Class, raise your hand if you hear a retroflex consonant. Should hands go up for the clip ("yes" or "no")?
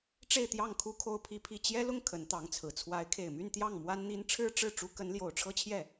yes